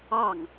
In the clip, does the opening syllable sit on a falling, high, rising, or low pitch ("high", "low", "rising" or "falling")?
falling